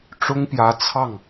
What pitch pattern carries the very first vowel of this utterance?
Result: high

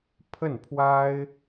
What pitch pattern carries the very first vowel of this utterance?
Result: falling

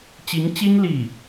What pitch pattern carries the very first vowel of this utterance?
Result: rising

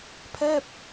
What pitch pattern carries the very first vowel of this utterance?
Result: falling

